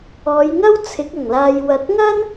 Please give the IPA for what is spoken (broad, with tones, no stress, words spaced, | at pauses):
ɔː˨˧jŋɐ˥wt͡sʰɪ˨˥k̚ ɐ˨˩ŋlaː˨j wɐ˨t̚ŋɐ˥n